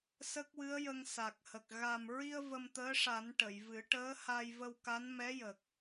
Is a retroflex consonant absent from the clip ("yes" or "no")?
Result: no